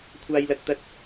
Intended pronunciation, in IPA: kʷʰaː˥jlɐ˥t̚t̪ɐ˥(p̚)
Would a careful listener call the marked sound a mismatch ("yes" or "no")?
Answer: yes